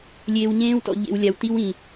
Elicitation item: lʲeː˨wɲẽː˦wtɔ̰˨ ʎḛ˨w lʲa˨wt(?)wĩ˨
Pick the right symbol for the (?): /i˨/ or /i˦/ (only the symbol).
i˦